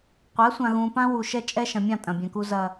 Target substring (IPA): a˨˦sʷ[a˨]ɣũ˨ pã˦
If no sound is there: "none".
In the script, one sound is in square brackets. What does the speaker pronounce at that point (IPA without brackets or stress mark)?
ã˨